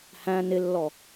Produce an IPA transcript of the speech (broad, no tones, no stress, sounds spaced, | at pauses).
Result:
h æ̃ n ɪ lː ɔ